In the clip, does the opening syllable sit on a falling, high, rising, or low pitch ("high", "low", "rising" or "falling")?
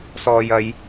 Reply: low